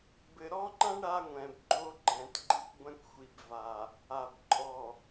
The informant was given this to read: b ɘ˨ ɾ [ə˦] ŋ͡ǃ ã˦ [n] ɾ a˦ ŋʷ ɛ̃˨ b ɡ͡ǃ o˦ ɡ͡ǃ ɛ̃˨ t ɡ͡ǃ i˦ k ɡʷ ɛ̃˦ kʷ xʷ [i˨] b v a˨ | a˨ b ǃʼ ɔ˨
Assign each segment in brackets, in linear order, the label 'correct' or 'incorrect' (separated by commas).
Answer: incorrect, incorrect, correct